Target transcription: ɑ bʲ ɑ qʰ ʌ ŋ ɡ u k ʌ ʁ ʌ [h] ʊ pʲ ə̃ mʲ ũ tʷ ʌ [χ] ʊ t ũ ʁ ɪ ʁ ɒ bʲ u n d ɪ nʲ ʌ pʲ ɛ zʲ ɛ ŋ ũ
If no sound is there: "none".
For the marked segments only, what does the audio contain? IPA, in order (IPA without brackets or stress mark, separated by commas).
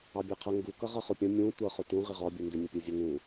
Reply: χ, χ